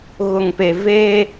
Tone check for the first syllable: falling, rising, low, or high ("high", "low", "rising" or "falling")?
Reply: low